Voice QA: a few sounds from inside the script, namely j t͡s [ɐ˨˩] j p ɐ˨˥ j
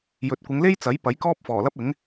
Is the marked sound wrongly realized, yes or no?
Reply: yes